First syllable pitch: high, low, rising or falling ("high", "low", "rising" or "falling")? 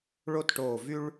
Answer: falling